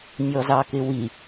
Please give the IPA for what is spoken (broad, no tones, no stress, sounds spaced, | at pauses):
nʲ ɔ z ɑ k ɪ w i